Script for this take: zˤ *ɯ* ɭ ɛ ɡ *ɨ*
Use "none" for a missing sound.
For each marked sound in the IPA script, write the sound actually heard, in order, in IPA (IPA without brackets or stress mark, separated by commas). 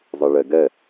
ɯ, ɛ